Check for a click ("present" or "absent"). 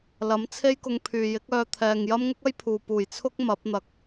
absent